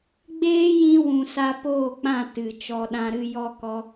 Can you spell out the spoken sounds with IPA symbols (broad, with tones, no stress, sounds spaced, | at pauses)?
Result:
ɡ͡b eː˦ j ĩ˧ w ũ˨ s a˧ p oː˦˨ k͡p ã˦˨ t ɨ˨ t͡ʃ ɔ˧ ɗ ã˦ ɾ ɨ˦ j ɔ˦ k ɔ˧